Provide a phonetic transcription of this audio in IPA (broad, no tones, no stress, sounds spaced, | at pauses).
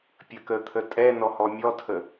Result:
pʲ ə k ə t̪ʰ ə tʼ ɛ n ɔ h ɔ mʲ ɔ tʰ ə